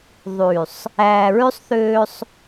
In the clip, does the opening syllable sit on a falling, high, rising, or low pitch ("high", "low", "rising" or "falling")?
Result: low